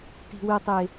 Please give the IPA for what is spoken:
ti̤˨wɨ˨tˤe˨

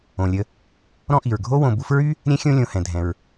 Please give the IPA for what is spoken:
õ˩lʲə˨ | ɾɔ̃˦ʔi˩ɹɡʱo˥ wõ˨bu˦fɹy˥ | ɾʲɛ̃˦xʲõ˦ lʲõ˨ hɛ̃˩ dʱɛ̃˩ɹ

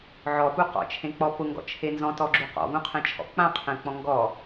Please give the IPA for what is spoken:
ʕɔpu qɔ̰t͡ʃʰẽk͡pɔ pʊŋɡɔ̰t͡ʃʰe nzɔ̃tɔɡ͡ǁu qɔ̰vũqʰɛ̃t͡ʃʰɔ̰ k͡pãqʰɛ̃k͡pɔ̃ ŋɡɔ

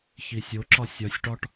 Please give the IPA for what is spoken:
çisʲo ǁɒsʲɒsʲʈɒʈ

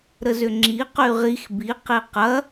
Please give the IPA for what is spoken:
ɾəzʏŋ͡ǁi qyʁix bi qiqɐ

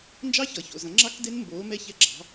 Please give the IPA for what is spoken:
nd͡ʒɑ˦˥çʌ˩ço̰˩ zɐ̃˩˥ŋ͡ǁɑ˦˥k de˦˥nmboː˩˥mɛ˦˨çɛ˦˨ ɡ͡ǁɑ̤˩˥

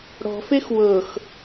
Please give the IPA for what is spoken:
ɽɔ̤fex wɤx

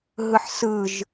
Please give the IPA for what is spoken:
ɦɯħsɯʒ

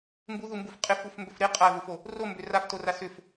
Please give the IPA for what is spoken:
mbuðumbuf qʼɪfufmbʏf ɾɪ qʼaðufo | rombʏ raftora sʏf

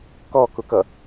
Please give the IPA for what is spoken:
kɔkʊkʌ

